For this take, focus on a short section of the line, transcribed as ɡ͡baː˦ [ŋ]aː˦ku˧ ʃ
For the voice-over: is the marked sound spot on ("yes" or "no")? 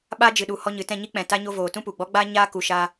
no